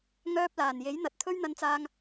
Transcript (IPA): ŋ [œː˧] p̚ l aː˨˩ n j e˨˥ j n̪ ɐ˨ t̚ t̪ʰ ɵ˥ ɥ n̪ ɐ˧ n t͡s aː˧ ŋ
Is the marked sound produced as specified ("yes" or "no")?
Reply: yes